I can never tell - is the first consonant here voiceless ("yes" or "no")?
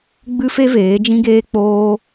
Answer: no